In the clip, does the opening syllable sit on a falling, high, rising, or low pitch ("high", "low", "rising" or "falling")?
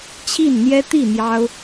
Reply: falling